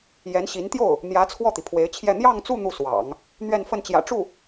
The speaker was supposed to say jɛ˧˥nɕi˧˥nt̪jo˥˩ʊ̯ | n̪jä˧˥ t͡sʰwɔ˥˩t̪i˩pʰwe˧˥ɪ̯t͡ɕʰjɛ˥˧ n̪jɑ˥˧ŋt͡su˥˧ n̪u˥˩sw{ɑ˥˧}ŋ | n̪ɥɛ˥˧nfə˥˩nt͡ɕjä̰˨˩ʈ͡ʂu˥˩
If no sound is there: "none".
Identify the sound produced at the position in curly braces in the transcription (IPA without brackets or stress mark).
ɑ̰˨˩˦